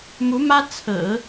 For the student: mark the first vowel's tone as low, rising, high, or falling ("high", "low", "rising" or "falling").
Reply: rising